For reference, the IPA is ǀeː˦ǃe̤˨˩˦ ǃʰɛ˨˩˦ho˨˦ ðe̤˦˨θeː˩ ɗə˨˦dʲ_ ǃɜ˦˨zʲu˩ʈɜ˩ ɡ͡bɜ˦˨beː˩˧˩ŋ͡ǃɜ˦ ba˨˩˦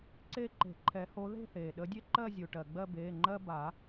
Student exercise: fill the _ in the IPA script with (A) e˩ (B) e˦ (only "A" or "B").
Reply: B